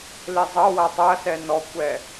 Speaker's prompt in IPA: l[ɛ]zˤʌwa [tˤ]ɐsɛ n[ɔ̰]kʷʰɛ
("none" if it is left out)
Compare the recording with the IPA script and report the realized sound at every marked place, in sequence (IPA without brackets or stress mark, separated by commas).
e, tˤ, ɔ